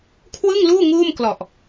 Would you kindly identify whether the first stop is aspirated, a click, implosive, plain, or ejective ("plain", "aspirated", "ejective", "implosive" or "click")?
aspirated